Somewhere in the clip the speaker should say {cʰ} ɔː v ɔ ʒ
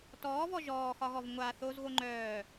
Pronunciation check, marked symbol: incorrect: t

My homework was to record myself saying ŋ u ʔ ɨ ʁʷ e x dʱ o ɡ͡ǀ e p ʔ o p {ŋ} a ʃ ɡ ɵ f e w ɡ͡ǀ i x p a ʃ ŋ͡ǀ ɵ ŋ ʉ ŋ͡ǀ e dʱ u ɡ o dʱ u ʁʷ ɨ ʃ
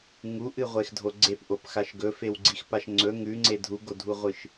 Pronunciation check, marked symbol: incorrect: x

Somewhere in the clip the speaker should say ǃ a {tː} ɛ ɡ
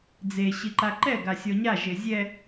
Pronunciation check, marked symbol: incorrect: ǃ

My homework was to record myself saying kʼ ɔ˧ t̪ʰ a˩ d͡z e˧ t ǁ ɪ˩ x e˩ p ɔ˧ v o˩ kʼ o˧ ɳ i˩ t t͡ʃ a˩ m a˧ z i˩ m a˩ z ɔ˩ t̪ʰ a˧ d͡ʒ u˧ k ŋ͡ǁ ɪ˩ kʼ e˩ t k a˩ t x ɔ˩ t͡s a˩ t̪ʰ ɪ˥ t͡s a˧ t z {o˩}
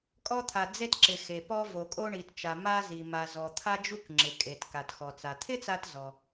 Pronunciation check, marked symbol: incorrect: ɔ˩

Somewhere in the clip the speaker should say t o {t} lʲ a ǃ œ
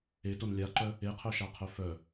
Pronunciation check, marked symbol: incorrect: n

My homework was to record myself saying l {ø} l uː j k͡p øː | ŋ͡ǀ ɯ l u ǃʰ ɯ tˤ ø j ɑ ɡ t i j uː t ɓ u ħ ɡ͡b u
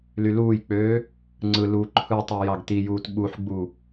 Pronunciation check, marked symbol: incorrect: y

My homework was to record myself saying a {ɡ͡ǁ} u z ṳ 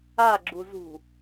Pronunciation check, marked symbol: correct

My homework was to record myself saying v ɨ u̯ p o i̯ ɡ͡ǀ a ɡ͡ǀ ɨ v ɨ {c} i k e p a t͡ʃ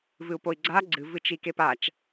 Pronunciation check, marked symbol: incorrect: t͡ʃ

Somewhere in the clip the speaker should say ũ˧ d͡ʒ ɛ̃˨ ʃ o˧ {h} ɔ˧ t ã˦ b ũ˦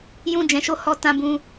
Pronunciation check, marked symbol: correct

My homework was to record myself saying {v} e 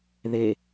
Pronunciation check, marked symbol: incorrect: ð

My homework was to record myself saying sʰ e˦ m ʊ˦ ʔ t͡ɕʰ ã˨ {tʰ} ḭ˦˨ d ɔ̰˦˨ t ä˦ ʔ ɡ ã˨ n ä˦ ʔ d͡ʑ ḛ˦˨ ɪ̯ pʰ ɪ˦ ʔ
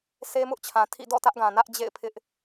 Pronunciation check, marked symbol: correct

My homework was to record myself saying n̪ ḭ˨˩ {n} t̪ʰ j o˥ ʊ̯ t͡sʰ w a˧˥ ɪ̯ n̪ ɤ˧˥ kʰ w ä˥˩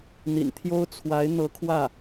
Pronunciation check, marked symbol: correct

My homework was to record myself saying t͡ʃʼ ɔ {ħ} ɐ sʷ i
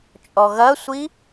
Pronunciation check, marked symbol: incorrect: ɣ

